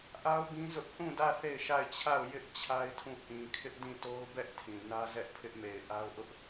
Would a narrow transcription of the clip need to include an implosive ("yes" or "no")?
no